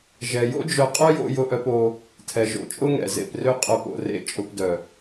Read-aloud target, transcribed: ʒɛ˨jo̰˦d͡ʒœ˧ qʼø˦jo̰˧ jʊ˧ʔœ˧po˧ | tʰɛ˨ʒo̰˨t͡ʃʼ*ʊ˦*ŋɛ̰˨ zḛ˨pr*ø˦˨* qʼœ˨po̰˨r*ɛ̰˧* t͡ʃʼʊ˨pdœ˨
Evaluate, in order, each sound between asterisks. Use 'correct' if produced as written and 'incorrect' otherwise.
correct, incorrect: ø˦, incorrect: ḛ˧

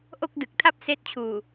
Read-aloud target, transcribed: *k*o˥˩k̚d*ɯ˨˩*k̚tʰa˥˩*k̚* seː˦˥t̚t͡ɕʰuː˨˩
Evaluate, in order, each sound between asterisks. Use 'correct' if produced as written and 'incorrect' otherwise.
incorrect: ʔ, correct, incorrect: p̚

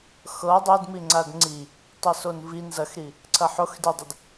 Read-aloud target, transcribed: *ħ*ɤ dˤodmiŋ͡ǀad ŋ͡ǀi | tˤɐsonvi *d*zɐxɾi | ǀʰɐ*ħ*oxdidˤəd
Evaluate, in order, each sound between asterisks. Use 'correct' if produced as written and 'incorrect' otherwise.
incorrect: x, incorrect: n, correct

